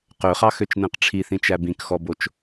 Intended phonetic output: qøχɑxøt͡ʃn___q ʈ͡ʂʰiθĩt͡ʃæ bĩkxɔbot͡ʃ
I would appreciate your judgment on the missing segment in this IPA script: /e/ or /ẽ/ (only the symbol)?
ẽ